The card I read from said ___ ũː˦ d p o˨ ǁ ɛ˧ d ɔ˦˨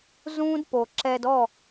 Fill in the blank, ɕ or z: z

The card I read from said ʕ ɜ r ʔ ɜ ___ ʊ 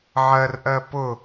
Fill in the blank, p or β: p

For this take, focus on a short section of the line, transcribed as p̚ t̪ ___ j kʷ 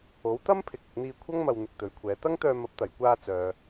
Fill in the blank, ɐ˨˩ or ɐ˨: ɐ˨˩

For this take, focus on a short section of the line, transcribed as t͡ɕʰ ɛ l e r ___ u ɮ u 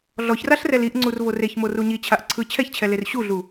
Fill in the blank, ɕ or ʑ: ɕ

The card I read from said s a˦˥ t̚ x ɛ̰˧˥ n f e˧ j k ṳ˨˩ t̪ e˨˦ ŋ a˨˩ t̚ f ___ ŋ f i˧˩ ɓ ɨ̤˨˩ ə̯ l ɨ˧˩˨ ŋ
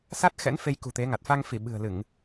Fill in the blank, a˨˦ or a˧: a˧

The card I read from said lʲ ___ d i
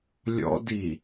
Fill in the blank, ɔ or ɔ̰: ɔ̰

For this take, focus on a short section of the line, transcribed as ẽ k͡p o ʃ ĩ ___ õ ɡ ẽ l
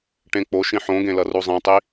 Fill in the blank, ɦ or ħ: ħ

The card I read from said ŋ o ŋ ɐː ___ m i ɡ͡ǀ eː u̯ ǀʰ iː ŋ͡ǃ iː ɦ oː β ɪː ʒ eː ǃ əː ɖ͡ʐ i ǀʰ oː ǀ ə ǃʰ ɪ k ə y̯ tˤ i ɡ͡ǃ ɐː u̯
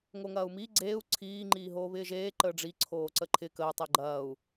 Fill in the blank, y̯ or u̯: u̯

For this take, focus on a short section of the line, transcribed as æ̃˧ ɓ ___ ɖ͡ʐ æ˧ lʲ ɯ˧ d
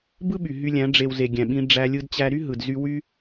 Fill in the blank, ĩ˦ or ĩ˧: ĩ˦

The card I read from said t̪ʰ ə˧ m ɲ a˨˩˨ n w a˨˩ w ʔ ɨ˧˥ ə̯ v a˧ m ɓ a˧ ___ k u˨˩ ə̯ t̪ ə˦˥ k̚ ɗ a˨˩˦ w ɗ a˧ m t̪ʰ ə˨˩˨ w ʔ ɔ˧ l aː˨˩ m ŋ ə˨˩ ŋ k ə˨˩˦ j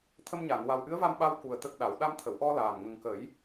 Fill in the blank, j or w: w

